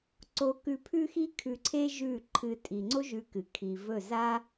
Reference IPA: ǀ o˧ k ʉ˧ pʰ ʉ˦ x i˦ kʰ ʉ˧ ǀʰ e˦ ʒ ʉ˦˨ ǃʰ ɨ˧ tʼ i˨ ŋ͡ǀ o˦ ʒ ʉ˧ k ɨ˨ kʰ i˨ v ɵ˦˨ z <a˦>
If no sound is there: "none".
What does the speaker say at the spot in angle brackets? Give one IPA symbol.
a˦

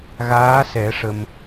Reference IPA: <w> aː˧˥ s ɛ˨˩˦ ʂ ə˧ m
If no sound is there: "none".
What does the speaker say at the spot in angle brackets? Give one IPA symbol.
ɣ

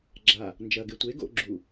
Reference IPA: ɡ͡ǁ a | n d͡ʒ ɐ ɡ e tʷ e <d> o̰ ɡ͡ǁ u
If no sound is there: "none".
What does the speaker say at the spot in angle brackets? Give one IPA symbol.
ɡ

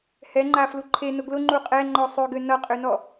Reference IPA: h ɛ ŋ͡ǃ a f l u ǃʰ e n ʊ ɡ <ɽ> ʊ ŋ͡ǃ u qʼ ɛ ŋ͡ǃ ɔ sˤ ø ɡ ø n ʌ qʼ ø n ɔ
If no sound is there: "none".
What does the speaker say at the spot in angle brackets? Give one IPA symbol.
l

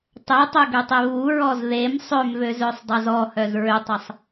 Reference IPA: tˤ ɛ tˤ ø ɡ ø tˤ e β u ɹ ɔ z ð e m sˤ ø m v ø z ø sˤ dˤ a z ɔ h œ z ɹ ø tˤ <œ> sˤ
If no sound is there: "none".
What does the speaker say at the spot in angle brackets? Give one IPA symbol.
ə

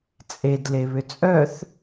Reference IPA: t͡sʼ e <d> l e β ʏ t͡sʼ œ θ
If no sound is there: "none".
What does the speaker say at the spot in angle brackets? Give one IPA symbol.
d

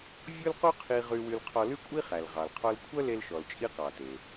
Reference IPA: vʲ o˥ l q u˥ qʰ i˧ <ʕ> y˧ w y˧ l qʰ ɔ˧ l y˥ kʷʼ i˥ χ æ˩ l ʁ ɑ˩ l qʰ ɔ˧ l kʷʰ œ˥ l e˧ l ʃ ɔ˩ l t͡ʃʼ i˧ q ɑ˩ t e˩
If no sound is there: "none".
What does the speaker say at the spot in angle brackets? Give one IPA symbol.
ʁ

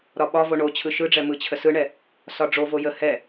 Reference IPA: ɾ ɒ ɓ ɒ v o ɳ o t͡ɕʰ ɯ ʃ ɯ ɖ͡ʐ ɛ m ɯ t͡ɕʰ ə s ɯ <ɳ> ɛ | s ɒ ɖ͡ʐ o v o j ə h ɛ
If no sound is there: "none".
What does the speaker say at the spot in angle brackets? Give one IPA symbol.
ɳ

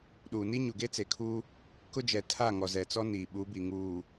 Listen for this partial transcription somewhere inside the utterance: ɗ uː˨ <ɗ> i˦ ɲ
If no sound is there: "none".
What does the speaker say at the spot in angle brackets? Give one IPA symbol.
n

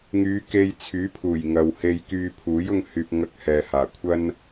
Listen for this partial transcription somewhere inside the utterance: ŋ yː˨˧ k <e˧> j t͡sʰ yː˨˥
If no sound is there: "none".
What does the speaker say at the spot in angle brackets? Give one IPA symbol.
e˧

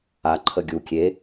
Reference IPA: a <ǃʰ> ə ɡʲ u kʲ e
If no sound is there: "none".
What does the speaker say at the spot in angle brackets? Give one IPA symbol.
ǃʰ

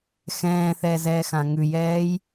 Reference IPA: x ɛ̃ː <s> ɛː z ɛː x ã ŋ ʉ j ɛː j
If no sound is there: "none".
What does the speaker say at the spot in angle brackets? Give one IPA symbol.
θ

